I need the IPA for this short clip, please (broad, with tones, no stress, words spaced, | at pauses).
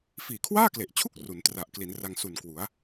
fiː˨˩kʰwaː˥˩kle˨˩ʔt͡ɕʰu˥˩k̚ ru˩˦n tra˨˩ʔkli˩˦nra˧ŋ su˨˩n kwu˩˦a̯